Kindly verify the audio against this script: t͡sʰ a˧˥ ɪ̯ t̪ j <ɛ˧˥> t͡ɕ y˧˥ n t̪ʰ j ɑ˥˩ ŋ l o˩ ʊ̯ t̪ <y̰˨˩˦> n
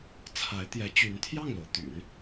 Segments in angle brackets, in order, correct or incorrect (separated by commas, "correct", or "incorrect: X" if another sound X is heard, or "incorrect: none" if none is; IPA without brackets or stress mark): correct, correct